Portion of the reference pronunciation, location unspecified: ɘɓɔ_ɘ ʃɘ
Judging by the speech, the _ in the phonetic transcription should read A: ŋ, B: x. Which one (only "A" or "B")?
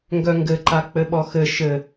B